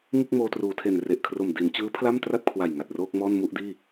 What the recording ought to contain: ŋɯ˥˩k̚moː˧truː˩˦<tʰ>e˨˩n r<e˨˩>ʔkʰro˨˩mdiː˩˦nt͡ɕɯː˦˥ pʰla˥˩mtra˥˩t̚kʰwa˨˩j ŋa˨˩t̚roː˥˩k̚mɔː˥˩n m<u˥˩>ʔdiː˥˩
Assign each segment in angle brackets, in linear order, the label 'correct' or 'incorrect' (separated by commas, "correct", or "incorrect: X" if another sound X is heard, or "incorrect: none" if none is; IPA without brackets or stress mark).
correct, correct, correct